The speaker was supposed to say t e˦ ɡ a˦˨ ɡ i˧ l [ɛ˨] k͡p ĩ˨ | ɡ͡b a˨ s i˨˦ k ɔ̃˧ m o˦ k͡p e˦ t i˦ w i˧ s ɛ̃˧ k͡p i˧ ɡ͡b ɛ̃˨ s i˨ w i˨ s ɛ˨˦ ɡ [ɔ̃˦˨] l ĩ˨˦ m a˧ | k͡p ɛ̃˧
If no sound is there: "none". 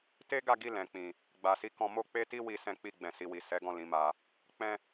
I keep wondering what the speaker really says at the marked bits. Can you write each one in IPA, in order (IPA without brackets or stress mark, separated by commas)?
ɛ̃˨, ɔ̃˦˨